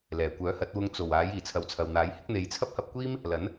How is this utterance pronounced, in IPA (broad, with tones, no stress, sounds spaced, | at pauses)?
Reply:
l ɛː˨˩ kʷ œː˨˥ h ɐ˨˥ t̚ w ʊ˧ ŋ t͡s o˨˩ w aː˨˥ j iː˨˩ t͡sʰ ɐ˨ w t͡sʰ ɐ˨ w n̪ aː˨˥ j h ɪ˥ k̚ n̪ e˨˧ j t͡sʰ ɐ˥ p̚ h ɐ˧ p̚ kʷ iː˥ m | l ɐ˨˥ n